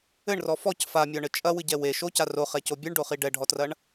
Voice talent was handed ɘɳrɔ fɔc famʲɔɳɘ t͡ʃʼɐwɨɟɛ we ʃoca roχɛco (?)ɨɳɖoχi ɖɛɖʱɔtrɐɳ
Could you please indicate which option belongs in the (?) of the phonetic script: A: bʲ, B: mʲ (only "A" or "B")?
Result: A